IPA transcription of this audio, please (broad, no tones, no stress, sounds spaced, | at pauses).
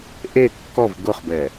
ʔ e kː ɔ v ɡ ʊ χ b ɛ